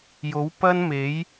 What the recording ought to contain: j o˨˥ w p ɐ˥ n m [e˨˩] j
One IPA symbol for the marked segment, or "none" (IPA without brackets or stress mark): e˨˥